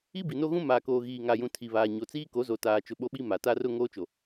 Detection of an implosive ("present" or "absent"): present